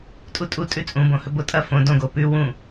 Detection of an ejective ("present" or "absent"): present